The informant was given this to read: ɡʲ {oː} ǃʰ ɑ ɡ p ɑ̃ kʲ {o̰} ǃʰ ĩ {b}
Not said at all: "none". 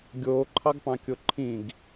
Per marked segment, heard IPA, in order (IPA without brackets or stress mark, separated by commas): oː, o, ɡ